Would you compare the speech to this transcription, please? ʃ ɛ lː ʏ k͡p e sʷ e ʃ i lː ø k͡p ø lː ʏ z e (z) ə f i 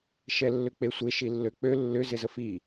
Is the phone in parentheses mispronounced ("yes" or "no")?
no